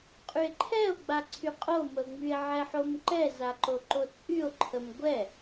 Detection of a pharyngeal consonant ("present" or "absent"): present